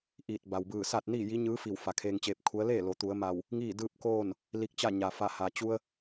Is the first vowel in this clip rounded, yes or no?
no